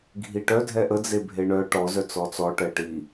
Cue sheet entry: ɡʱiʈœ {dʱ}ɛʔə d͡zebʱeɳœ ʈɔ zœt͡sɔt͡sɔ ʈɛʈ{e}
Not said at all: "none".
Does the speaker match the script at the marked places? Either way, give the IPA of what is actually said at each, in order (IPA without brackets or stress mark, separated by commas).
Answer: dʱ, i